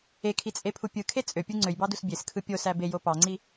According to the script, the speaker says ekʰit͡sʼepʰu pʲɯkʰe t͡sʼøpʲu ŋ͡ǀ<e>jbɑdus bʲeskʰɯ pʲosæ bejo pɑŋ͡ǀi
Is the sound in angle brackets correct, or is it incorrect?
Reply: incorrect